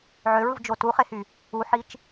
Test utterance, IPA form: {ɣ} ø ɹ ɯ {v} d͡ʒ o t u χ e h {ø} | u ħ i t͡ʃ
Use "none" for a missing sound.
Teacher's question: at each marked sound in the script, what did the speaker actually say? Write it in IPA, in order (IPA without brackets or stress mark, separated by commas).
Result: ʕ, v, y